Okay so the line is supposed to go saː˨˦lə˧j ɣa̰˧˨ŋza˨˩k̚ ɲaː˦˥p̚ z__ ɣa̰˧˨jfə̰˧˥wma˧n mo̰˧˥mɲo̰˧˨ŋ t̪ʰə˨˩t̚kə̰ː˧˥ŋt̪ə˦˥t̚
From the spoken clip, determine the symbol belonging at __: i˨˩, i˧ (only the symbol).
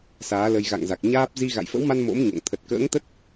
i˧